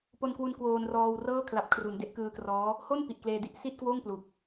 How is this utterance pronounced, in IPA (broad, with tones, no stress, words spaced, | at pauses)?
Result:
po˧nkwu˧n kwoː˧nrɔː˧wrɤː˥˩ kʰla˨˩p̚kʰru˩˦n de˦˥ʔkɯː˧krɔː˦˥ | ho˥˩n pi˨˩ʔkleː˧di˥˩ʔ si˥˩t̚kwoː˥˩ŋ plu˨˩k̚